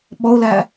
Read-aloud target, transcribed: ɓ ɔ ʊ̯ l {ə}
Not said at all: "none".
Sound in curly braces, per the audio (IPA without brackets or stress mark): æ